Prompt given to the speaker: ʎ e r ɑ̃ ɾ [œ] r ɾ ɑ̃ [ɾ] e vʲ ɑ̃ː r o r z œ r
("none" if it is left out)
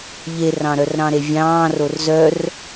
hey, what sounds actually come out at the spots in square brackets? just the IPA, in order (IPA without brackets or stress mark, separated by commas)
œ, ɾ